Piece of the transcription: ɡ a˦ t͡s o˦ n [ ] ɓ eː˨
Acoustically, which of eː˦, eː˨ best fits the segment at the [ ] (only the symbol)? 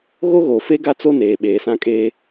eː˨